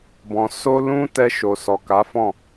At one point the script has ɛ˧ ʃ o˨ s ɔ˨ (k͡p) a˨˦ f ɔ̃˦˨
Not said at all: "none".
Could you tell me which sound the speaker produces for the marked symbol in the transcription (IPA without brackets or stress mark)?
k